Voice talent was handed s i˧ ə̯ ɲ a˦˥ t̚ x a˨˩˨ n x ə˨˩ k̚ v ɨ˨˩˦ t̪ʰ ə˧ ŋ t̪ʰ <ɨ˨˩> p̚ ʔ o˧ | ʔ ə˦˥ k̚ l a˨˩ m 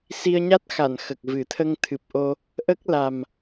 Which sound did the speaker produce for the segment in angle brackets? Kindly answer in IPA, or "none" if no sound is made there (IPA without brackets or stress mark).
ɨ˨˩